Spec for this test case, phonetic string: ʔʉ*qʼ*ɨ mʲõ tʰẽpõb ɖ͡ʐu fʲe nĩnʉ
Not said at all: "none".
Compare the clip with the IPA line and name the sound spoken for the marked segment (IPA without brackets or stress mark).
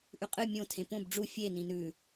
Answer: qʼ